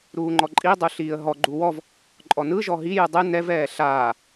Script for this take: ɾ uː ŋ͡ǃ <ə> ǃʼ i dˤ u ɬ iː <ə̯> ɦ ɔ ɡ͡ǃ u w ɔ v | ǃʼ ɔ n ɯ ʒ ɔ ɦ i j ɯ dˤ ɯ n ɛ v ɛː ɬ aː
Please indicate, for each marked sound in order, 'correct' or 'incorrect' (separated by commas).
incorrect, correct